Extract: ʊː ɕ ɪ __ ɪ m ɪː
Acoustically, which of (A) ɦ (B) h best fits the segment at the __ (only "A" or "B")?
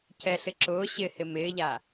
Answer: B